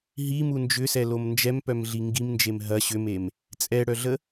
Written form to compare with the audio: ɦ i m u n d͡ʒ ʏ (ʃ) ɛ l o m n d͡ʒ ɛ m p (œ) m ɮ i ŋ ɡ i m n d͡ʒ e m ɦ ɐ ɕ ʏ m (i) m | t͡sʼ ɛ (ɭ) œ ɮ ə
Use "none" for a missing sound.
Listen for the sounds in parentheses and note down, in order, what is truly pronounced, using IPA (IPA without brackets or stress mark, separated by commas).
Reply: s, œ, e, ɽ